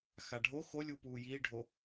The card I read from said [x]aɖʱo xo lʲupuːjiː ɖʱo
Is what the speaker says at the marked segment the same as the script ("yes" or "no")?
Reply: yes